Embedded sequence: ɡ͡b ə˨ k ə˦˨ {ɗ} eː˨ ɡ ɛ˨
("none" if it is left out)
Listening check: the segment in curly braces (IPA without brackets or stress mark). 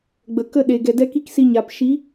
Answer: ɗ